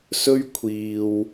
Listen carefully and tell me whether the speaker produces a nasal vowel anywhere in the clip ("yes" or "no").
no